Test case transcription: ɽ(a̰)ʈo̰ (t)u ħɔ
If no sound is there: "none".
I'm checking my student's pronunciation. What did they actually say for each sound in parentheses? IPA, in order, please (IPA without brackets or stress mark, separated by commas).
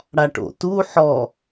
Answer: a, t